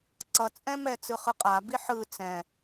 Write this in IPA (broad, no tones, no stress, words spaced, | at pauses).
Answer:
ǀʌt͡sʼɛ̃mɛ t͡sɯχɯqʼabi ħɯ t͡sɛ̃